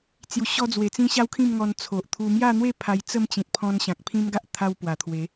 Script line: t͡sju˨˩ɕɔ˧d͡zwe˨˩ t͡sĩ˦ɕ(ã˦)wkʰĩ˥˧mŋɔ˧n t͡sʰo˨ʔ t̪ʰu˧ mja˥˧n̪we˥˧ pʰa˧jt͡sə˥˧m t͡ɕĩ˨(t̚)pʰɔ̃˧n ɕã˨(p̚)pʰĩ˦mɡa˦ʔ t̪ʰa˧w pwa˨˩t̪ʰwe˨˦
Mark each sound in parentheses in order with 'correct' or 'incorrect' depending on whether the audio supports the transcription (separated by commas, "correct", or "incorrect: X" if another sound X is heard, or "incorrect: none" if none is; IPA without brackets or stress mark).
incorrect: a˦, correct, incorrect: k̚